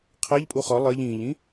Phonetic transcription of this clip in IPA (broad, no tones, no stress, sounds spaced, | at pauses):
qʰ ɛ ʎ pʼ u χ ɒ lˠ ɜ ʎ ĩː ʎ ĩ